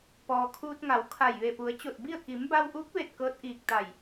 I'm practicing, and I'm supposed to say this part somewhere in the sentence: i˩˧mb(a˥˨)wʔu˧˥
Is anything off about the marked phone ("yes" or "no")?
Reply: yes